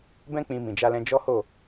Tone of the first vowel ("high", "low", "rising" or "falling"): high